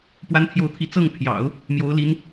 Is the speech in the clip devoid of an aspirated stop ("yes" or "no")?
no